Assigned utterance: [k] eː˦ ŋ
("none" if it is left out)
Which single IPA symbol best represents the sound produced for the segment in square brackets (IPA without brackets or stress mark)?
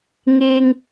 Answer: ŋ